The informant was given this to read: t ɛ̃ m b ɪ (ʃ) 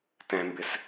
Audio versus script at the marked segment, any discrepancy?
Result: yes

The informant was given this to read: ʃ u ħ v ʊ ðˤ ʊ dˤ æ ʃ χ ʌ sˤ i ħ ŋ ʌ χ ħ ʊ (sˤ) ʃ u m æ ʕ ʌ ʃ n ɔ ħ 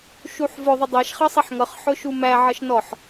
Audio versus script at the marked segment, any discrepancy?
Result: yes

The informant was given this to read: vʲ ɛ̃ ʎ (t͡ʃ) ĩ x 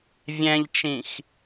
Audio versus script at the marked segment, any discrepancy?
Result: no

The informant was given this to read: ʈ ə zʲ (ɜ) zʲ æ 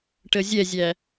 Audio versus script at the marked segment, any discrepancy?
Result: yes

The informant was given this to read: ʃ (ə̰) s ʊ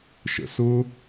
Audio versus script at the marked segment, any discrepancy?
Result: no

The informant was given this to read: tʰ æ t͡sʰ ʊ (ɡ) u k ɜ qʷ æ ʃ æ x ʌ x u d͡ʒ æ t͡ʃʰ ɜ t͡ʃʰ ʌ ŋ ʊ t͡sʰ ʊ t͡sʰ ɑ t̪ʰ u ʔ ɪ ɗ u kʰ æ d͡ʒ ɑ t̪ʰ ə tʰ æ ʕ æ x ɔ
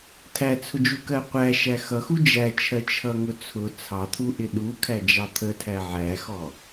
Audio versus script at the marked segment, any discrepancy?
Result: yes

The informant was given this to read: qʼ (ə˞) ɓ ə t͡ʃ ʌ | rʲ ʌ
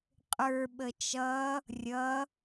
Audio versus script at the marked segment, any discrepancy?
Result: no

